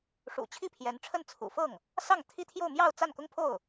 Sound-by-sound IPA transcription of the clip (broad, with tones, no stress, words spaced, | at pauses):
ʂṵ˨˩t͡ɕʰi˥˩pʰjɛ˧˥nʈ͡ʂʰə˥˩n t͡sʰṵ˨˩fɤ˥˩ŋ | sɑ˥˩ŋt̪ʰi˥t̪ʰjo˥˧ʊ̯ mjɑ˥˧ʊ̯ t͡sa˥˩nkʊ˥ŋpʰo˥˩ʊ̯